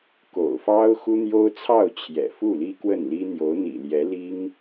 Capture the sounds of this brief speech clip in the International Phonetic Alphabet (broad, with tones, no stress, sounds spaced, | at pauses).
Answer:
k o̰˨˩ ʊ̯ f ɑ˥ ʊ̯ x u˥ n̪ j o˥ ʊ̯ t͡sʰ ɑ˥˩ ʊ̯ t͡ɕʰ j ɛ̰˨˩ f u˥˩ l i˥ k w ə˥˩ n l i˥ n̪ j o˧˥ ʊ̯ n̪ ḭ˨˩ l j ɛ˧˥ l i˥ ŋ